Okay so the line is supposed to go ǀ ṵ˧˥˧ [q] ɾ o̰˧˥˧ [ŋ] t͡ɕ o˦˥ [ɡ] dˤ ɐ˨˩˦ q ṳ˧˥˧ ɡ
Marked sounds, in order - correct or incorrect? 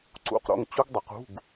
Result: correct, correct, correct

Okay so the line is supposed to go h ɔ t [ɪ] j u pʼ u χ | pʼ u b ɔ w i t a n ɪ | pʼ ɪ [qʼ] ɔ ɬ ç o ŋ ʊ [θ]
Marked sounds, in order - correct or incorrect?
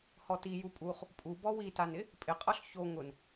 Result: incorrect, correct, incorrect

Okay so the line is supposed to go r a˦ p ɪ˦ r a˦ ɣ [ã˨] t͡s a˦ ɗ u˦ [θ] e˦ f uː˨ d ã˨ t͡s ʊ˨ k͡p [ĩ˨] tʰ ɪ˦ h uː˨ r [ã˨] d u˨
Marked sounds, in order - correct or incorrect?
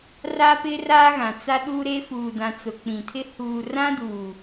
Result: correct, incorrect, correct, incorrect

